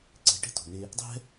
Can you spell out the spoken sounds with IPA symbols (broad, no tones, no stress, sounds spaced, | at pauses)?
ǀ e̤ ʈ e̤ t o̤ n e | dˤ ɛ̤